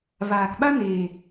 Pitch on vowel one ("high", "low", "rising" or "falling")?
low